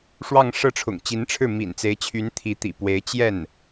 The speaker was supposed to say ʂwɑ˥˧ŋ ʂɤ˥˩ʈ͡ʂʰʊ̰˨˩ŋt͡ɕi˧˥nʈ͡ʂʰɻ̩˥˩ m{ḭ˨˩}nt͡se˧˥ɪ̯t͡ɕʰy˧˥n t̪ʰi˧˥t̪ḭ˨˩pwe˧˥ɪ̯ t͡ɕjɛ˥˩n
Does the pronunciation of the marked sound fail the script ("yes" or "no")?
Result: no